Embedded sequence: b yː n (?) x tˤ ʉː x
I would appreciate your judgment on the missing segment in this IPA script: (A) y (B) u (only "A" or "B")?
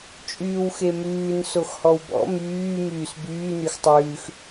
A